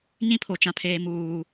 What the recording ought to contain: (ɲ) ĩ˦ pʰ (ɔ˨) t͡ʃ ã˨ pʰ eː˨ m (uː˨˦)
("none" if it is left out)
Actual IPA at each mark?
ɲ, o˨, uː˨

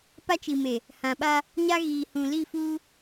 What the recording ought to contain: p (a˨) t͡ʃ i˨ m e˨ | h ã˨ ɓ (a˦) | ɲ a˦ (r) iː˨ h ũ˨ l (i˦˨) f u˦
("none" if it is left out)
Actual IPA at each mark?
a˦, a˦, ɣ, i˦˨

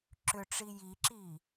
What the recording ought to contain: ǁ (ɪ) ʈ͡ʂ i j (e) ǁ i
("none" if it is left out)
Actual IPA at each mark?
ʏ, i

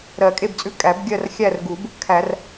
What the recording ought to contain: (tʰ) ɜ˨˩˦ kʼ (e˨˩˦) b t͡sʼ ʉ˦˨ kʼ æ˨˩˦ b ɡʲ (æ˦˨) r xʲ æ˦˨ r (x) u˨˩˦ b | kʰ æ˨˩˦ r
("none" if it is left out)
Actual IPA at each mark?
ɾ, e˦˨, ɜ˦˨, ɡ

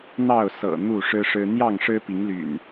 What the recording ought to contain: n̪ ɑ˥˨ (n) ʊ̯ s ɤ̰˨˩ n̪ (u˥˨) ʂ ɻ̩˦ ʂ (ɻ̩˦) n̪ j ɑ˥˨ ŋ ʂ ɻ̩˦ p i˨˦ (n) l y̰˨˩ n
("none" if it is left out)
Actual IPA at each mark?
none, u˥˨, ɻ̩˦, ŋ

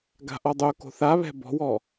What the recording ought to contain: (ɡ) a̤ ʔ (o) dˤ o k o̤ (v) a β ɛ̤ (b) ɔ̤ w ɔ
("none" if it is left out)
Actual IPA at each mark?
ɡ, ɔ, θ, b

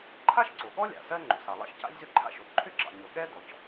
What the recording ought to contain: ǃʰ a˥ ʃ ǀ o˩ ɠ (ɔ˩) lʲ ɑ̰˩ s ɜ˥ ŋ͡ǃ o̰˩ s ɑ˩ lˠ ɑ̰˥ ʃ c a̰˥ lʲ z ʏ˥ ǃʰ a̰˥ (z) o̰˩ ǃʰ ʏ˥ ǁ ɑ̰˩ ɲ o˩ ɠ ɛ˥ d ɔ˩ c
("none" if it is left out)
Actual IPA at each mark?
ɔ˥, ʃ

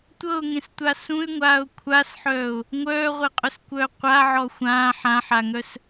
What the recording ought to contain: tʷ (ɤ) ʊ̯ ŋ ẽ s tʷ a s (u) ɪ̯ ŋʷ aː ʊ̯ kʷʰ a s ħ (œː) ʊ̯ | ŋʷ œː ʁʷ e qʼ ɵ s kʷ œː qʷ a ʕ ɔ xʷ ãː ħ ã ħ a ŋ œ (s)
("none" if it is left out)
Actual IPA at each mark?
ɤ, ũ, œː, s

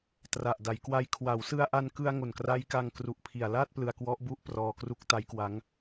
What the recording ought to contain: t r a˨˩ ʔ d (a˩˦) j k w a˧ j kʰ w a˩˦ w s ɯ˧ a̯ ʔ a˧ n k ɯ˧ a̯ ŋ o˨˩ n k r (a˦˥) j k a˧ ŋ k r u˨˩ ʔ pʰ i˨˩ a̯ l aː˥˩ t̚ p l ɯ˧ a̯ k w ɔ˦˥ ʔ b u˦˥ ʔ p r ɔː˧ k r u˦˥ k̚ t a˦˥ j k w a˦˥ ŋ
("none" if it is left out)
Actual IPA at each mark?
a˩˦, a˦˥

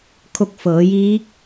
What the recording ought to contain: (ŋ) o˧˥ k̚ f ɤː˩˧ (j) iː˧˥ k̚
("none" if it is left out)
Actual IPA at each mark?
kʰ, j

